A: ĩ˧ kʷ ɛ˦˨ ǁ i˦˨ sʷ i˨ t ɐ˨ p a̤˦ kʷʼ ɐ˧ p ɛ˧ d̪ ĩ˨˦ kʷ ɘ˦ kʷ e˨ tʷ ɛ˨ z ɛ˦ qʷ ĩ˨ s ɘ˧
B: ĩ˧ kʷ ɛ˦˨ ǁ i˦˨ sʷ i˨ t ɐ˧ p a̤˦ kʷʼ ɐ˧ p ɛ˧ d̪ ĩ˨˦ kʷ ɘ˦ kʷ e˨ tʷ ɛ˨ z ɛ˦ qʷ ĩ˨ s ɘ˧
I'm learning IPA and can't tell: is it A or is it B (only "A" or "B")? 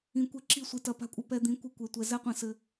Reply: B